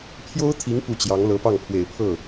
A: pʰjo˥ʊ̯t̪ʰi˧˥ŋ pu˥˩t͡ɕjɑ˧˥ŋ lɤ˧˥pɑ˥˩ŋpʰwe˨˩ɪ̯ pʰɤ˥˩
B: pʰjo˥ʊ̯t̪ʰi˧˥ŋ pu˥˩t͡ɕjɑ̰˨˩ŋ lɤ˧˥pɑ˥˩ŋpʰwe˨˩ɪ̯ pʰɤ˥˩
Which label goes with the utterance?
A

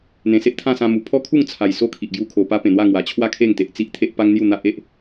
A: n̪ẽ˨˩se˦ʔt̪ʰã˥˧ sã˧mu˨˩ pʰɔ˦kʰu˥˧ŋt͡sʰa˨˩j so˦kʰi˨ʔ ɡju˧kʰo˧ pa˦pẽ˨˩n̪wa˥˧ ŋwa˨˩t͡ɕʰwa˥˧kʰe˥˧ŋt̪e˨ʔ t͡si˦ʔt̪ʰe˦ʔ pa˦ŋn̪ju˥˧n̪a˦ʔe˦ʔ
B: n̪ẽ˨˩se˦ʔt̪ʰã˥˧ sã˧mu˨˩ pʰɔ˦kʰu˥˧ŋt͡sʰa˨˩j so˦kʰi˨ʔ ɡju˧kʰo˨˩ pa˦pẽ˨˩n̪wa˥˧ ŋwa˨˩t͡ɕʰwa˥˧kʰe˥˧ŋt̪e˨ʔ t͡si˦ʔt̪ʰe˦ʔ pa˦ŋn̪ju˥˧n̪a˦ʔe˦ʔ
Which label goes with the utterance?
B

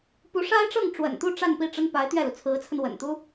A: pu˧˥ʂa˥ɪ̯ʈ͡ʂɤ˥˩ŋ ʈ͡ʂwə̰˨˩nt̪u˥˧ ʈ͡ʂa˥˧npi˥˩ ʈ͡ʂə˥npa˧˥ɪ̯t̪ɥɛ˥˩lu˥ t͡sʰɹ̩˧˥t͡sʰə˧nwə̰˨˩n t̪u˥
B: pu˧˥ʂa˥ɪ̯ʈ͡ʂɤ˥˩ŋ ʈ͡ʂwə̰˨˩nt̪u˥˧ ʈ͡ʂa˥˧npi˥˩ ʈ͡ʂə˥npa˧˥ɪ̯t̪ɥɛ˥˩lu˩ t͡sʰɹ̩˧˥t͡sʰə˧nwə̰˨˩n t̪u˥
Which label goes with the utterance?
B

